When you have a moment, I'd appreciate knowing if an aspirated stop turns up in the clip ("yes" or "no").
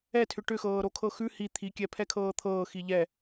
yes